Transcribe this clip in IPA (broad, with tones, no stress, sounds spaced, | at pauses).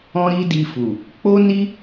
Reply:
ɔ̃˦ ɾ i˦ d i˧ f u˨ | k͡p o˦ n i˦